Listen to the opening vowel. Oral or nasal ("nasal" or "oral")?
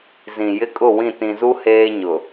nasal